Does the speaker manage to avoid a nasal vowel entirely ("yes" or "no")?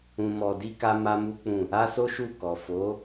no